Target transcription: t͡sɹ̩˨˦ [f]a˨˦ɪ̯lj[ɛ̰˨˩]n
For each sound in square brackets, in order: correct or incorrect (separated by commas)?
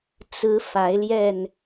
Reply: correct, incorrect